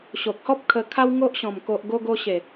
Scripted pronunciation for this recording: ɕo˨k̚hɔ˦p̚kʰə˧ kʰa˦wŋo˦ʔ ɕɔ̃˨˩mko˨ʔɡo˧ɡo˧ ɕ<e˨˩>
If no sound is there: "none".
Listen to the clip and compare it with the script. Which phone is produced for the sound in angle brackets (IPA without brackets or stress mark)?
e˨˩